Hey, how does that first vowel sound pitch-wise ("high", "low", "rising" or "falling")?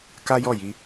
high